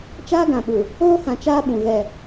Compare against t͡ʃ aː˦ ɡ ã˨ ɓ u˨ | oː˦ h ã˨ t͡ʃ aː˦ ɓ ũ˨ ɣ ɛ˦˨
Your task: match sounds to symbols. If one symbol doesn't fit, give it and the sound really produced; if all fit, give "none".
none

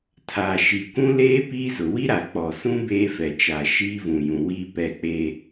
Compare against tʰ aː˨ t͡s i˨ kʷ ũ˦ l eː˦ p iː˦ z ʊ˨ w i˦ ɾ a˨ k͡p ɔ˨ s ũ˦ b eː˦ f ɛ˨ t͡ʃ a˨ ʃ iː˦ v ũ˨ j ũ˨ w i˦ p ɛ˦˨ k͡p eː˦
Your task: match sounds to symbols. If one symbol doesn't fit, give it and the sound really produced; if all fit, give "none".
t͡s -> ʃ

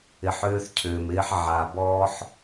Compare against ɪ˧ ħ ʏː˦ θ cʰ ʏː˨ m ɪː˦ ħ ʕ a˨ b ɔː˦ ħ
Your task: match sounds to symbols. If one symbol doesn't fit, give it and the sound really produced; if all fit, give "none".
none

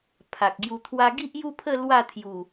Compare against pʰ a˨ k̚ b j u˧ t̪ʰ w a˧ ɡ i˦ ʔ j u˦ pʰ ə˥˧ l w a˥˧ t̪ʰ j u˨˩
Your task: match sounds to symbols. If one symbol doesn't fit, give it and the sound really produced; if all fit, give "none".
b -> ɡ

